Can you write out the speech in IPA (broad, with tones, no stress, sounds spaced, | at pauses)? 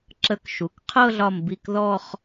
ǁ ə˧˥˧ k ʃ u˩˧˩ k qʰ ɤ˥˧ ɮ ɒ˧˩ m b i˧˩ k ð ɔ˥˧ χ